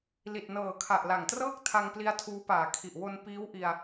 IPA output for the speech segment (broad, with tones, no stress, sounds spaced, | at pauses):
l i˨˩ t̚ n ɤː˨˩ kʰ a˨˩ ʔ l a˨˩ ŋ t r ɤː˥˩ k̚ tʰ a˧ ŋ p l i˧ a̯ tʰ uː˦˥ p aː˨˩ kʰ i˨˩ ʔ w o˧ n p iː˦˥ w ʔ i˧ a̯